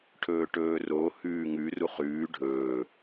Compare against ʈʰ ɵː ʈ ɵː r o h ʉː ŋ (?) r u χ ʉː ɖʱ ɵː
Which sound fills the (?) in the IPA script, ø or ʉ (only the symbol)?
ʉ